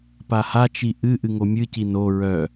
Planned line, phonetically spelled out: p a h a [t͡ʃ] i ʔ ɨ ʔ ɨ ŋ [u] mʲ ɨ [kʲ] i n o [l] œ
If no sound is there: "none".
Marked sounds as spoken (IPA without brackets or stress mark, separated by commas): t͡ʃ, o, c, ɹ